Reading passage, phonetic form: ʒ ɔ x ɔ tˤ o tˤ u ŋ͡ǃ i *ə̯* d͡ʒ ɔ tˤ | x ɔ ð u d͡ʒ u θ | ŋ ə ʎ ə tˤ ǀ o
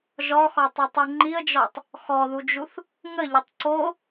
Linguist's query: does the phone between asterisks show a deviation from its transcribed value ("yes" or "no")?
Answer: no